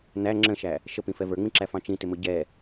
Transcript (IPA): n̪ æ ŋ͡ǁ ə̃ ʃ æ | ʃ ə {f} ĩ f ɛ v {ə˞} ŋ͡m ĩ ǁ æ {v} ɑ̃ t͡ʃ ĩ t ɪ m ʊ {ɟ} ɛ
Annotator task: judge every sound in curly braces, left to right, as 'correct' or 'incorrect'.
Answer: incorrect, correct, incorrect, correct

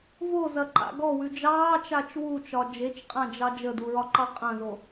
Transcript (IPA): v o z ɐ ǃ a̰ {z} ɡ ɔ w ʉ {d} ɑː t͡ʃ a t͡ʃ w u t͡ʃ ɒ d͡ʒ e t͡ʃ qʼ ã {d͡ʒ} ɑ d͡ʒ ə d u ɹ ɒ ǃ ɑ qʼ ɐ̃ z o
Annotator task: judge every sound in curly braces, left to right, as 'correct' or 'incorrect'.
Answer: incorrect, incorrect, correct

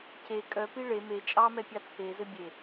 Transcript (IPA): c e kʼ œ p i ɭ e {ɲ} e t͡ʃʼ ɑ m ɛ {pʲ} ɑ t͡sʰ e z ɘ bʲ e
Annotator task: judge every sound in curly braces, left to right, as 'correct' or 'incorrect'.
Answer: incorrect, correct

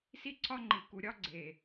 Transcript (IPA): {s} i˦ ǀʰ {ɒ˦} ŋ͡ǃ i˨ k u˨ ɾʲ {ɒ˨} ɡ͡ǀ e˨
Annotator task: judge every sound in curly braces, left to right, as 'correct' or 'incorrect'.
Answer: correct, correct, incorrect

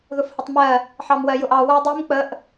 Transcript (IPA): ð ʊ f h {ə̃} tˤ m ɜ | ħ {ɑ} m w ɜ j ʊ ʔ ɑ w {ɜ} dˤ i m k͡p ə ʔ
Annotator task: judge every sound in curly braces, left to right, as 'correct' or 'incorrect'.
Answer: incorrect, correct, incorrect

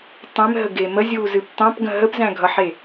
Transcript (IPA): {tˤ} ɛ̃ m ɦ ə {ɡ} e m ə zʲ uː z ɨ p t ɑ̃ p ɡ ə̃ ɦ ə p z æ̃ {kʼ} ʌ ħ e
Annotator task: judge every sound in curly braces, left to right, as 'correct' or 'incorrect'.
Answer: correct, correct, incorrect

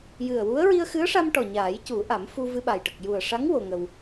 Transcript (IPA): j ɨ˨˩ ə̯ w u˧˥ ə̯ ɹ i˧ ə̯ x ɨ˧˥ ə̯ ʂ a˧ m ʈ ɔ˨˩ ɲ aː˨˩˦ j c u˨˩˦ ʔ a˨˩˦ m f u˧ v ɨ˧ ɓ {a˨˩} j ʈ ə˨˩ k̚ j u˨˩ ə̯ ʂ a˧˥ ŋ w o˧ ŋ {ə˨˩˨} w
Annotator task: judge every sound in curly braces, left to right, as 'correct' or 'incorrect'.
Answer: correct, incorrect

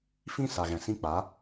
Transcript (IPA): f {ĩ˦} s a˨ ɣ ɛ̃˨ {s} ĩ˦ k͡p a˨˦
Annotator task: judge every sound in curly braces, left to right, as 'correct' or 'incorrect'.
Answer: correct, correct

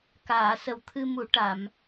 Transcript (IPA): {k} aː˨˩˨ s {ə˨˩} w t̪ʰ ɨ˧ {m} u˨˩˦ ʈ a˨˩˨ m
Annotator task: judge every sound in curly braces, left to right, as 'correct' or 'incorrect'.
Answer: correct, correct, correct

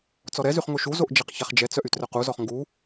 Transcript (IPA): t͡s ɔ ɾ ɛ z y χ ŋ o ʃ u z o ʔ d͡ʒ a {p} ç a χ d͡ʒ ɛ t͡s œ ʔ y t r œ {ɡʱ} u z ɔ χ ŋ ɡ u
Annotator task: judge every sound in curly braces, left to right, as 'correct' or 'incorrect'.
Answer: incorrect, incorrect

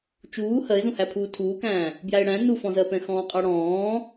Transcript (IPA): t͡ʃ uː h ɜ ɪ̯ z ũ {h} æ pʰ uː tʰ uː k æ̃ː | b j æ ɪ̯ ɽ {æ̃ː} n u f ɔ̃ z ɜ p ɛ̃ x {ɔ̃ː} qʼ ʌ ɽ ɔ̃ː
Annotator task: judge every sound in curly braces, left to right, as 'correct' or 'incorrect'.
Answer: correct, incorrect, correct

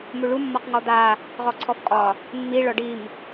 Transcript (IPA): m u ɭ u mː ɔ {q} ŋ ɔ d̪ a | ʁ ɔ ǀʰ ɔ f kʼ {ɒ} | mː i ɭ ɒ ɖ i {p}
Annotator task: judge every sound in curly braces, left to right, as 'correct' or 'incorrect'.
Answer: correct, correct, incorrect

